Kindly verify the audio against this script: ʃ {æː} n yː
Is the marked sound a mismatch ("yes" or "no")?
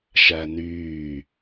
yes